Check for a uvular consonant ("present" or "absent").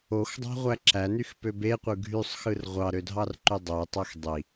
present